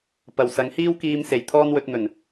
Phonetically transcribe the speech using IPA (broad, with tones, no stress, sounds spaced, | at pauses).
p ɐ˨ w s ɐ˨˧ ŋ h iː˥ w k iː˧ m s e˨˩ j t̪ʰ ɔː˥ n w ɵ˧ t̚ n̪ ɵ˨˩ n